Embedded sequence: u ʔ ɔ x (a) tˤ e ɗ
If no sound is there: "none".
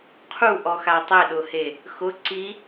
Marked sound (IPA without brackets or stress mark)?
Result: a